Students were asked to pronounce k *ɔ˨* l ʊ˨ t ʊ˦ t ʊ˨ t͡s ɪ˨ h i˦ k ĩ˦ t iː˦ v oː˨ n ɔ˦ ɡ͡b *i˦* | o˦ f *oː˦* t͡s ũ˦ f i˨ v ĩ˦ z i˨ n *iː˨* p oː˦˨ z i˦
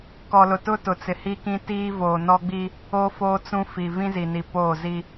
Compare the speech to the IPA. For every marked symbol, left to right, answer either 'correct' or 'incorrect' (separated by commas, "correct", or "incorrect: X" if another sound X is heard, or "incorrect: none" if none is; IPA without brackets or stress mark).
correct, correct, correct, incorrect: i˨